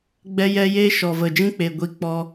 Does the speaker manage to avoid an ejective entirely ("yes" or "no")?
yes